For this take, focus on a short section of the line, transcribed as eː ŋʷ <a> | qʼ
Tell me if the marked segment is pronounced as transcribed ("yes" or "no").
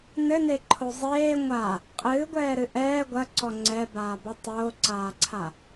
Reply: yes